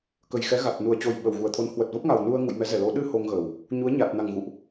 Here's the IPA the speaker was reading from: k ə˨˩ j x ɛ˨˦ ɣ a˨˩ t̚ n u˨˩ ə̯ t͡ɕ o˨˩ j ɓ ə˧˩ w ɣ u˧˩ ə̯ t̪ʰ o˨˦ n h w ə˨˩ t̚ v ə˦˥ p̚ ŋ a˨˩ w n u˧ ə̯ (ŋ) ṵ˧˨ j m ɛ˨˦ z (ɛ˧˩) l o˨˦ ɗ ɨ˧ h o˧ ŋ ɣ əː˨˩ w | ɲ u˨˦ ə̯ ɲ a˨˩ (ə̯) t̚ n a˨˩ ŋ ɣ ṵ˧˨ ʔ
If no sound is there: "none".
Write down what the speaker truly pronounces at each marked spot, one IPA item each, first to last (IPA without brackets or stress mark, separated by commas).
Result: ŋ, ɛ˧˩, none